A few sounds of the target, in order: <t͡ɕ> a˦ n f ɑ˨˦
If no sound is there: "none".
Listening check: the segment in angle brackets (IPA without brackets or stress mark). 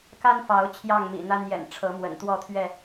k